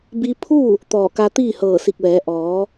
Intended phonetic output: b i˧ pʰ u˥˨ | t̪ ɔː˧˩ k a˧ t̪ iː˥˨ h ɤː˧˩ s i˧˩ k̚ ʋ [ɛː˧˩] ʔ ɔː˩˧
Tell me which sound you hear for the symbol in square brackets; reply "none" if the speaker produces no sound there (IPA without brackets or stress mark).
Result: ɛː˩˧